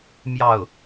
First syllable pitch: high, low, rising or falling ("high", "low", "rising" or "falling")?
falling